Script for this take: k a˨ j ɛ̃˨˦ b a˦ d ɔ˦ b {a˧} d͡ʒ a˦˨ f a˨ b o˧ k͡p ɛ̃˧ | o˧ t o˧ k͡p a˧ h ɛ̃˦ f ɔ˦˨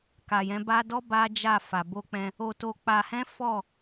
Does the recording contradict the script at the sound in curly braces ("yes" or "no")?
yes